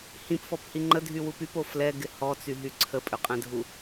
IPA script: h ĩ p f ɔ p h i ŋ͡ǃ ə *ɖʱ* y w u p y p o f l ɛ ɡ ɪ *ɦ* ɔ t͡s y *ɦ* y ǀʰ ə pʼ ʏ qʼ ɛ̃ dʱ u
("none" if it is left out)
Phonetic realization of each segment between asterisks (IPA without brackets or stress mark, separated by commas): dʱ, h, ɦ